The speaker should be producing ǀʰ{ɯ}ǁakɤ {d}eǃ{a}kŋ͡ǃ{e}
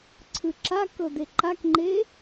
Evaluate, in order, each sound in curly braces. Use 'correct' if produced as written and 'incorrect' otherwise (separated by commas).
correct, correct, correct, correct